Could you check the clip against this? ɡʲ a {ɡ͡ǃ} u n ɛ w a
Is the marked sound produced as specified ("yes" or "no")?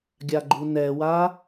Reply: yes